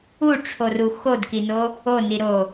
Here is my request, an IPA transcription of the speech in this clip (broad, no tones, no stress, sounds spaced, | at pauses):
u ʈ͡ʂʰ o r u x o d k i n o | o n i ɾ o